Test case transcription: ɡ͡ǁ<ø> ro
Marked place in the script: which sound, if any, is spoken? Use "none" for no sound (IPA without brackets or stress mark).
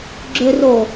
ø